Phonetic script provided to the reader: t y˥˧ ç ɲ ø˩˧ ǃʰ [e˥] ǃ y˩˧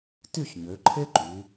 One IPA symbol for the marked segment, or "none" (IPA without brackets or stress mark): e˥